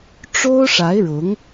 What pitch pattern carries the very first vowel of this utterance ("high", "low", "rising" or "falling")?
high